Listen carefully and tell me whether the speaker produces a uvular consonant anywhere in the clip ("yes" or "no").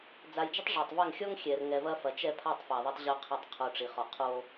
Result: yes